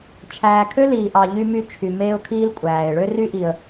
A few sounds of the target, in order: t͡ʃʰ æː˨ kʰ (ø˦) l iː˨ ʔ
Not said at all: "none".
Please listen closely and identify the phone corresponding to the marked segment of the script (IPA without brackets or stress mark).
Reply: ø˦